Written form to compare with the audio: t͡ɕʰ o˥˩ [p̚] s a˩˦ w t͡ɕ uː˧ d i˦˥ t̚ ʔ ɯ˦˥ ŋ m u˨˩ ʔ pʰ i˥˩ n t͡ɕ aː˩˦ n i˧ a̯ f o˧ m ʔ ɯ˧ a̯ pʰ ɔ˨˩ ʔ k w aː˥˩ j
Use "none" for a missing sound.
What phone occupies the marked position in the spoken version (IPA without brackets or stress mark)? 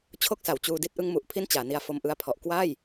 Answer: k̚